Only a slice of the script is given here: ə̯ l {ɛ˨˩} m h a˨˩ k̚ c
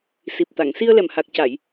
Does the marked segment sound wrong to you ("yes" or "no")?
no